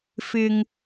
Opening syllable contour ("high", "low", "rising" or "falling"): low